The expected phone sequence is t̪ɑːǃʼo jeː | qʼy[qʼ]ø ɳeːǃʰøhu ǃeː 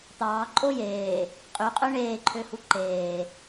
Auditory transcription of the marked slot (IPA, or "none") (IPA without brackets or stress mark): qʼ